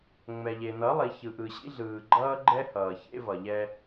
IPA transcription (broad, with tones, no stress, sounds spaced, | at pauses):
ŋ͡m ɛ˨ ʎ e˨ n ʌ˨˦ lˠ i˨ ç ɯ˨ ʔ ɯ˨ ɕ ḭ˦ ɮ ɯː˨ ɡ͡ǃ ʌː˦ ɡ͡ǃ ɛ˦ h ʌː˨ ç ḛ˦ v ʌ˨ ʎ ɛ˦